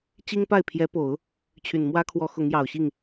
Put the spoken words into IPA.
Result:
t͡ɕ i˥ ŋ p a˥˩ ɪ̯ pʰ j ɛ˧˥ p o˨˩˦ ʊ̯ | t͡ɕʰ y˨˩ n m w ä˥ kʰ w ɔ˧˥ x ʊ˧˥ ŋ j ɑ˨˩ ʊ̯ ɕ i˥˩ ŋ

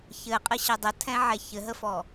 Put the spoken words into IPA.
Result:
ç ɘ qʼ ɘ ɕ ɛ dˤ ə tʰ ɛ̃ ʕ ɛ ç ɘ ɦ ə f ɔ

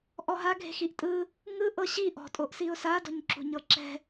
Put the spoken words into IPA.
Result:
ʔ ɔ ɦ a ɡʱ e̤ x i ʔ tʼ ɯ | ŋ ɯ ʔ ɤ ɕ i ʔ ɔ̤ tʼ o ʔ s i ʊ̯ s a d ɔ̤ ɲ ǁ ṳ ɲ ɤ ǁ ɛ̤

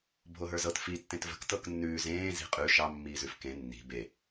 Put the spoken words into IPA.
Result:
bʱ o ɦ ə˞ z ɤ t f i tː ẽ t v ə̤ k t ɤ k nː ʉː z ẽː z i̤ qʼ ʉ ʃ ɑ mː iː z ʉ f k ẽ nː i̤ b e

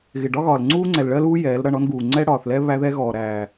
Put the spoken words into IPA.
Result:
ɣ ɪ˨ ɖ ɒ˦ ɣ ɒː˨ l ŋ͡ǀ uː˦ ŋ͡ǀ ɛ˨ l ɭ ɜ˦ l uː˦ j ɛː˨˦ l ɾ ʌ˦˨ ɳ ɔ˦ n ɡ uː˨ ŋ͡ǀ ɛ˦ ɽ ɒː˨ θ l ɛ˦ β æ˦ ð ɛ˦ ɣ ɔː˨ ɾ æː˨

